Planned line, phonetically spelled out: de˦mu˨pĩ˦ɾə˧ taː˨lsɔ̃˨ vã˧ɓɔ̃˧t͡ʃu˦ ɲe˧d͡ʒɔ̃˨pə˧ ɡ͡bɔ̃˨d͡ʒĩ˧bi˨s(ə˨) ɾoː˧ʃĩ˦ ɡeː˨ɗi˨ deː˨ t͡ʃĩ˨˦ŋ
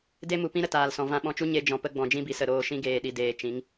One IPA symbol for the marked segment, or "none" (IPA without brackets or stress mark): ə˨